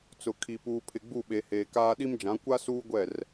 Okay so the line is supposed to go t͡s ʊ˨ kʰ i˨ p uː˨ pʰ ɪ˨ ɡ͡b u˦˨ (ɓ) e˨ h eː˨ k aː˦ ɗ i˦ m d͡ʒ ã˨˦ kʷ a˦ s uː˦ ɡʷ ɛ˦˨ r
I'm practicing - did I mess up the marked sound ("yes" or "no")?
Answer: no